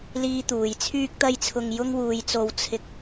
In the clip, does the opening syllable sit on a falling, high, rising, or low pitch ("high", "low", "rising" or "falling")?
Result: high